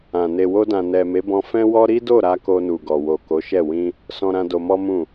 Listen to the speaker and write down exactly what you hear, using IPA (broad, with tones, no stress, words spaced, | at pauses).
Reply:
ã˨ ne˨wo˧dã˨ nɛ˨ me˨˦bɔ̃˧ fɛ̃˦wɔ˦ ɾi˦do˦˨ɾa˧ ko˧nu˨ɡɔ˨wo˨ ko˨˦ʃɛ˦˨ wĩ˧ | sɔ̃˧ɾã˧ do˧mɔ˦mũ˦˨